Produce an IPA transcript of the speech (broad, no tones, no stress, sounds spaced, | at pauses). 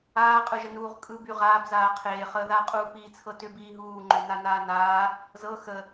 aː qʼ ɯ ʒ ə n uː ʁ kʼ ɯ b y ʁ aː b z aː qʰ eː χ əː ð aː qʼ uː p iː t͡sʰ ɤ t ʏ b iː ɦ uː ŋ͡ǃ ʏ n a n aː n aː | z ɤ x ə